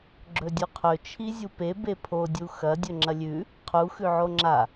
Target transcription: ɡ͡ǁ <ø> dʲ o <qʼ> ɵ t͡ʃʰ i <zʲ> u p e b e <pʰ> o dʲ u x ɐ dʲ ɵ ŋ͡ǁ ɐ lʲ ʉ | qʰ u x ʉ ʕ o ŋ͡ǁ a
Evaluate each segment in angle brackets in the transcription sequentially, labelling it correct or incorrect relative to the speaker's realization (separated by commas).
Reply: incorrect, incorrect, correct, correct